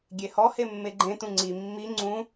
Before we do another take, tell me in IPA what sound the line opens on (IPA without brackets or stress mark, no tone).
ɡʲ